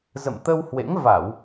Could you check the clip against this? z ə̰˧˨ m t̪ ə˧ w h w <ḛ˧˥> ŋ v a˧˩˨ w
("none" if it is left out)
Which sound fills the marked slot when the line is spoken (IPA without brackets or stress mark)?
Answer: ḛ˧˥